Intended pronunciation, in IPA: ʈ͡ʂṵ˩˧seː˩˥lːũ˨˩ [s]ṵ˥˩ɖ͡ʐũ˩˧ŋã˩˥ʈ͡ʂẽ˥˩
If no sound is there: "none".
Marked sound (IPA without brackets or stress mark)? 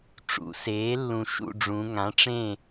ʃ